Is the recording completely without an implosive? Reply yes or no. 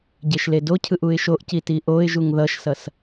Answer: yes